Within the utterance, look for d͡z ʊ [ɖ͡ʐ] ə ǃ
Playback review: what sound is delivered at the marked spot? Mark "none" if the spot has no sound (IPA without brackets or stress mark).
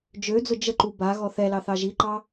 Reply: d͡ʒ